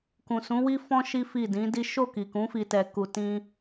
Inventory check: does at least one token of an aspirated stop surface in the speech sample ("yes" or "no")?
no